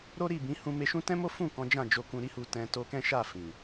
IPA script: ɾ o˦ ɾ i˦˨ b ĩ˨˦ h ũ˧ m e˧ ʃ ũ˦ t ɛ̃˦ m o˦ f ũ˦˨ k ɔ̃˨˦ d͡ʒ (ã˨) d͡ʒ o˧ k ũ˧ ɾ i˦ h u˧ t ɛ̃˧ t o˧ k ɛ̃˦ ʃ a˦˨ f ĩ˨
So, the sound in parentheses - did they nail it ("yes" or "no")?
no